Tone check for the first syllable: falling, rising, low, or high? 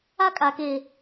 high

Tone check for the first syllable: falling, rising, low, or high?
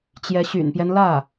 rising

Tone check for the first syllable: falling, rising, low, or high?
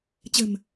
low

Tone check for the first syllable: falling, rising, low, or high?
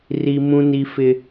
high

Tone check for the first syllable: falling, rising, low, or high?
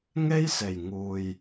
high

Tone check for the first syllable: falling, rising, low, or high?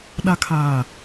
low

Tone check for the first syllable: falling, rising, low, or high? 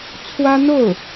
high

